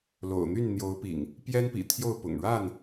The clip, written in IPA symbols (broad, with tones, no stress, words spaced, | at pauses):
lo̰˨˩ʊ̯n̪y˥˨n n̪jo˨˦ʊ̯pḭ˨˩ŋ | pjɛ˦npḭ˨˩t̪ʰjo˥˨ʊ̯ pʊ̰˨˩ŋɻa˥˨n